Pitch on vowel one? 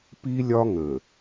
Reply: high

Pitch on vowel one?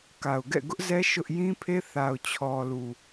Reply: low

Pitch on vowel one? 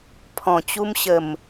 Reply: low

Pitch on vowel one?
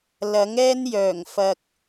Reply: rising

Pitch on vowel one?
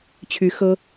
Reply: rising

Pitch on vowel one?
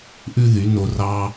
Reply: high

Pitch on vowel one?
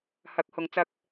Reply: rising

